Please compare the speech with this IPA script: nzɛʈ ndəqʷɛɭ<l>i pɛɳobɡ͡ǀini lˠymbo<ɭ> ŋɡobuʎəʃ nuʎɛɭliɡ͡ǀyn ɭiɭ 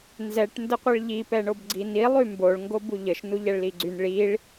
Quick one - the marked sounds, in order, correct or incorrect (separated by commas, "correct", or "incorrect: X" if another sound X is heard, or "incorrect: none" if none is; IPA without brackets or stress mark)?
incorrect: ʎ, correct